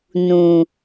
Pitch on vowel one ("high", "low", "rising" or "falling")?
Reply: low